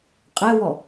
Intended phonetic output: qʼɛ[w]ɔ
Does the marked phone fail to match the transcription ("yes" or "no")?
no